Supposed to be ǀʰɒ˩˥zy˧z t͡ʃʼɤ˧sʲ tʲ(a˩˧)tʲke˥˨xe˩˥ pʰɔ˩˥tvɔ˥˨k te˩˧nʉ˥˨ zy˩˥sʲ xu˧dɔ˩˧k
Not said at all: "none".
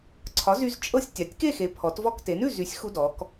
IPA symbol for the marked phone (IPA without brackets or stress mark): a˩˧